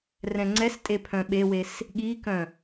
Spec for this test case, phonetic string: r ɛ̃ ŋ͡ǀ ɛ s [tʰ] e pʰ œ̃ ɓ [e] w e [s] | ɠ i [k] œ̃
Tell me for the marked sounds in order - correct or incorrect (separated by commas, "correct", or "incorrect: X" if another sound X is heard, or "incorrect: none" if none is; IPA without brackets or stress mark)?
incorrect: tʼ, correct, correct, correct